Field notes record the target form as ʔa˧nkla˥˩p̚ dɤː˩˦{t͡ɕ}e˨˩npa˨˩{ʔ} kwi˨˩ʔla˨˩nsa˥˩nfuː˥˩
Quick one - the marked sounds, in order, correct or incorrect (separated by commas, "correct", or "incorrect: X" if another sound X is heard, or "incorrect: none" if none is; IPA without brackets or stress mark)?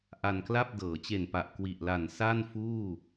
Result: correct, correct